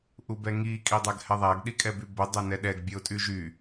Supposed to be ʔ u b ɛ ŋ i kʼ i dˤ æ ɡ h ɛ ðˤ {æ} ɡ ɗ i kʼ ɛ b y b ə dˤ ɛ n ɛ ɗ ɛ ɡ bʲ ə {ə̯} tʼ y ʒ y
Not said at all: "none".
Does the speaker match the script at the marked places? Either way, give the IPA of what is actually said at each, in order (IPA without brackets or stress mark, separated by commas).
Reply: æ, ʊ̯